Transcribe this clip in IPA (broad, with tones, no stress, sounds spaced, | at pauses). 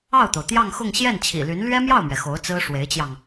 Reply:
ɑ˥˩ ʊ̯ t̪ o˩ ʊ̯ t̪ j ɑ˥˧ ŋ x ʊ˥˧ ŋ ɕ j ɛ˥˩ n t͡ɕʰ ḭ˨˩ l y˧˥ n l ɥ ɛ˥ m j ɑ˥˩ ʊ̯ m ɥ ɛ˩ x o˧˥ ʊ̯ t͡s ɹ̩˥ ʂ w e˧˥ ɪ̯ t͡ɕ j ɑ˧ ŋ